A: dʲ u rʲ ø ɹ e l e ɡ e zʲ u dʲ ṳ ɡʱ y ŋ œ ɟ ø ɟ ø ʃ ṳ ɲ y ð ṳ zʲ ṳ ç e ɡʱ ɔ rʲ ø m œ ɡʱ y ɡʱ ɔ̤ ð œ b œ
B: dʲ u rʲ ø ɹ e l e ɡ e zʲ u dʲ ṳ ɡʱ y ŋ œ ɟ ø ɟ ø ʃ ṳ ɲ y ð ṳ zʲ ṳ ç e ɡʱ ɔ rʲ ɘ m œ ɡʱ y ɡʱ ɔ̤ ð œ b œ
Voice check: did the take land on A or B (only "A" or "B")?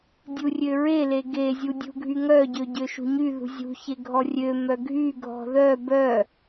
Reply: A